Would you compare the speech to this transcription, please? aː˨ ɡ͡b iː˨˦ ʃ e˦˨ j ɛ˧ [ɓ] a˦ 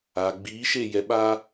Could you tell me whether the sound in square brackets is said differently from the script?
no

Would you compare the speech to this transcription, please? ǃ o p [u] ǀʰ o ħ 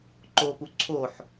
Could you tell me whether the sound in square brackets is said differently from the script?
no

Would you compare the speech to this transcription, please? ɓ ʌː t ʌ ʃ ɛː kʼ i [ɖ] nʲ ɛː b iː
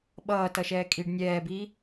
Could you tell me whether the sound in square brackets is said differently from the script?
no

